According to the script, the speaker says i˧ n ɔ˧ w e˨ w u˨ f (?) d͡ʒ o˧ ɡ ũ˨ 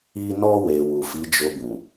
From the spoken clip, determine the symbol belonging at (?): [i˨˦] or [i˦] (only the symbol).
i˨˦